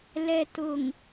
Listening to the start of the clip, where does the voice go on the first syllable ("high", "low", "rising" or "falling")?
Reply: low